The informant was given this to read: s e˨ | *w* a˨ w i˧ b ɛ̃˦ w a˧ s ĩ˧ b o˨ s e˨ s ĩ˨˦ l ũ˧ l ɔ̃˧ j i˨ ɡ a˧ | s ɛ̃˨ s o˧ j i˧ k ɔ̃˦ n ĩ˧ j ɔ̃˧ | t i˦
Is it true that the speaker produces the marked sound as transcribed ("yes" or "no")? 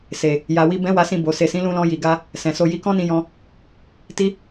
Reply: no